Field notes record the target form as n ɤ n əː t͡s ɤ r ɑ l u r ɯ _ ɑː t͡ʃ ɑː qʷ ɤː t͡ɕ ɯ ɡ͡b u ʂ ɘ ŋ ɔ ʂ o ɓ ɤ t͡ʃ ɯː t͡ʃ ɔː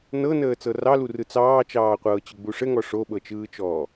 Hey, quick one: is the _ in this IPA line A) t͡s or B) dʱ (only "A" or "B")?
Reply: A